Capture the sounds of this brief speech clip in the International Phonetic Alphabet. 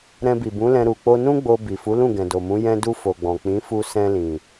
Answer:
ɾɛ̃˧bi˨bũ˨˦lɛ̃˧ ɾu˨k͡po˧nũ˦ɡ͡bo˧ bi˨fu˨˦lũ˦˨ ɡɛ̃˨do˨mũ˨˦ jɛ̃˧du˧ fo˨ɡ͡bɔ̃˨ k͡pĩ˨˦fu˧ sɛ̃˧lĩ˨

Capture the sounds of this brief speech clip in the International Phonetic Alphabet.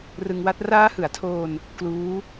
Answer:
rɯ˧ŋwa˦˥t̚ raː˦˥hɯ˩˦a̯tʰoː˧n | kluː˦˥

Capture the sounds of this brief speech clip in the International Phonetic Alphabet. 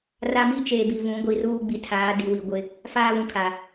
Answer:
ra˦ mi˦t͡ʃeː˨bi˨ vũ˨˦ɡʷi˨ruː˦ ɡ͡bi˨tʰaː˨˦di˨wi˨ ɡʷɪ˦ | faː˦βũ˨kʰa˨

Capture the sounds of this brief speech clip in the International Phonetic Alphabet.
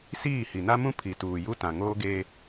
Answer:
siː˦˨hi˨na˦mũ˦ pʰi˨tuː˨ju˦ tã˨ŋoː˦ ɡeː˦

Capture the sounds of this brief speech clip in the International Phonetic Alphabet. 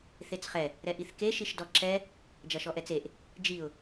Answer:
θet͡sχɛ | ɾɛʔiθke ʃiʃdɔǁɛ | d͡ʒɐʃɔʔɛt͡seʔ | d͡ʒiʊ̯

